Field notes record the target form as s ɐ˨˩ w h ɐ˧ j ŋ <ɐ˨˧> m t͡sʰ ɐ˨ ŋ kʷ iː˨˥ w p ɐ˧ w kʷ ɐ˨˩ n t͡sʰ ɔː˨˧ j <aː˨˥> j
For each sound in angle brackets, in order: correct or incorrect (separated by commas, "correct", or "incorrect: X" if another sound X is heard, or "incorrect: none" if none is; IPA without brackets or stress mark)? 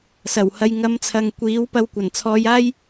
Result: correct, incorrect: aː˥